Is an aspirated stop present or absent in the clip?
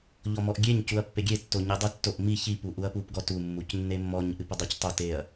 absent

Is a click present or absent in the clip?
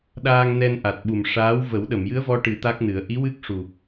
absent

